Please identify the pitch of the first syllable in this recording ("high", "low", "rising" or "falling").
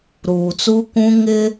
low